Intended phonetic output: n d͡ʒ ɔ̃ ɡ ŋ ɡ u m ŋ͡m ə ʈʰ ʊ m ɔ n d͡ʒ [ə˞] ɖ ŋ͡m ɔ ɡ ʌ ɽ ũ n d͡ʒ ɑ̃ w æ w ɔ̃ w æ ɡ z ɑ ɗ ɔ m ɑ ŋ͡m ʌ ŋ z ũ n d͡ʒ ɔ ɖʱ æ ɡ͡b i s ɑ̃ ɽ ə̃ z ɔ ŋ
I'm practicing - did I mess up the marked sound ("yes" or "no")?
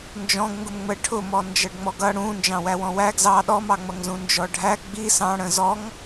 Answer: yes